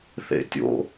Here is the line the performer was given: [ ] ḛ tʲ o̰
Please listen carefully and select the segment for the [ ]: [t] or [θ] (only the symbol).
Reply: θ